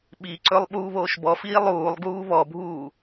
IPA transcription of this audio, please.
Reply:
ɓ i ǀ ɵ lˠ ɓ uː β oː ʃ b ɔ f iː lˠ uː lˠ ɡ uː β ɔ bʱ uː

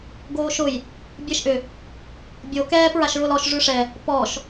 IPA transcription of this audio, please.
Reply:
ɡ oː ʃ ʊ j | bʲ ɛ ʃ ʔ ʏ | bʲ o k ɛː p ɹ a ʃ ɹ ʊ l ɔ ʃ ʐ ʉ ʂ ɛ | p ɔ ʃ

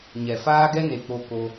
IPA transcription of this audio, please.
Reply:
ɲ ɛ˨ f aː˦ ɡ ɛ˦ n e˨ k͡p o˨ k o˧

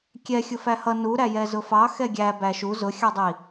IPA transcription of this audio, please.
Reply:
kʲ ɛ xʲ ʊ f æ h ʌ n u ɾ æ j ɛ z ʊ f ɑ x ɛ ɡʲ æ b æ ʃ u z ʊ xʲ ɑ dˤ i

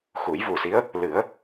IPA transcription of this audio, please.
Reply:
x u˨˩˦ j v u˨˩ s i˧˥ ə̯ | l ɨ˨˩˦ ə̯

